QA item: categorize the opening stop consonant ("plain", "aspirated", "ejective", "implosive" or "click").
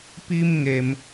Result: plain